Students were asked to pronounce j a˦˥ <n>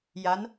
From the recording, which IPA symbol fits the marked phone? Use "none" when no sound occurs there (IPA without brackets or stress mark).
n